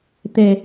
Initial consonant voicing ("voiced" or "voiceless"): voiceless